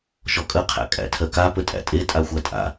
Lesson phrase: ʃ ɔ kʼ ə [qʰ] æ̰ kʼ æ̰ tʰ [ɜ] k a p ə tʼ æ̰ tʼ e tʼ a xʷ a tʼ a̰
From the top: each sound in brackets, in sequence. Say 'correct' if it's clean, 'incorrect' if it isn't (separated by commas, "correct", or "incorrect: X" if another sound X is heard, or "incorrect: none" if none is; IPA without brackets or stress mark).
correct, correct